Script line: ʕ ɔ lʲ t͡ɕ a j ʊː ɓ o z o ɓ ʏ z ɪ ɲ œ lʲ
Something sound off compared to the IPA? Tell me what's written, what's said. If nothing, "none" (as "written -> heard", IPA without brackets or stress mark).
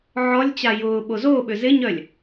none